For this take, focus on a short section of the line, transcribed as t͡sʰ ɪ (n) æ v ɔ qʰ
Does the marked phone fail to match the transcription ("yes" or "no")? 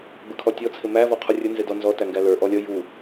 yes